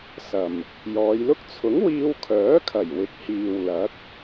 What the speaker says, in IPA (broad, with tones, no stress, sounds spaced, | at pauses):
s ɐ˨˩ m | j ɔː˨˧ j l ʊ˥ k̚ t͡sʰ ʊ˨˥ ŋ w iː˧ w kʰ œː˨˥ kʰ ɐ˨˩ j w ɪ˨ k̚ h iː˨ w l ɐ˨˥ k̚